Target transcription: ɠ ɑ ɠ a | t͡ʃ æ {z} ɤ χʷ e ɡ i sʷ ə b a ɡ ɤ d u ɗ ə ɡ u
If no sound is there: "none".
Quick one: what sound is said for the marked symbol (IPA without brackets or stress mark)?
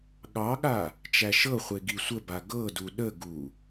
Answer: ʃ